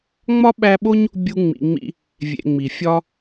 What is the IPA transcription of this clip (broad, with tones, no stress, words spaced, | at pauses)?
ŋ͡mɒ˥ɓæ˦ɓo˥ɲ | bʲu˦ŋ͡mḭ˨ŋ͡mḭ˦ | vʲḛ˨ŋ͡mi˩ fʲɒ˦